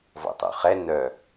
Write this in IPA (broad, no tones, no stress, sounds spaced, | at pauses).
v ɔ̰ tˤ o̰ χ ɛ n œ